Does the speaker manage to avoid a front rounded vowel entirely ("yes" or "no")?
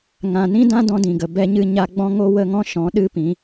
yes